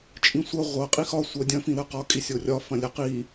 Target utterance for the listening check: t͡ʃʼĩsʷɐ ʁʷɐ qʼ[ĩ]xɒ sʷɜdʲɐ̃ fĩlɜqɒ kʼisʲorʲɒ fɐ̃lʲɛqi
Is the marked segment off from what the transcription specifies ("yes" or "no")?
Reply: yes